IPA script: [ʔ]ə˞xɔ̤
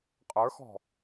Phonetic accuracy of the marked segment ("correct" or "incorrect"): incorrect